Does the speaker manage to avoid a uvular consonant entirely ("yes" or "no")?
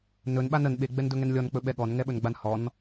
yes